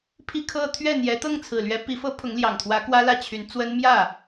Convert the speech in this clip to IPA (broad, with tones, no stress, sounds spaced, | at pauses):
pʰ i˥˧ kʰ ɤ˥˧ t̪ʰ ɥ ɛ˥˩ n̪ j ɛ˧˥ t̪ ɤ˥˩ ŋ t͡sʰ ɹ̩˨˩ l ɥ ɛ˧˥ p i˧˥ f ɤ˥ pʰ ʊ˧˥ ŋ l j ɑ˨˩ ŋ t̪ʰ w ä˧˥ k w ä˥ l ä˥˩ t͡ɕʰ y˧˥ n t͡s w ə˥ n m j ä˥˩